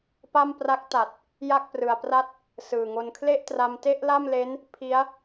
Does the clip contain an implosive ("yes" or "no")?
no